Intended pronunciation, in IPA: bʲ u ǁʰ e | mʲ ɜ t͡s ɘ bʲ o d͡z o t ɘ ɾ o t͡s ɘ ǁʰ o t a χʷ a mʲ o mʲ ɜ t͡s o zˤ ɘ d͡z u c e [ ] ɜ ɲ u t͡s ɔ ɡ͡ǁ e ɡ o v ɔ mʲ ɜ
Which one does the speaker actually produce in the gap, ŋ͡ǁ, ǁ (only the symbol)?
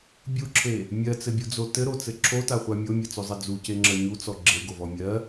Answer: ŋ͡ǁ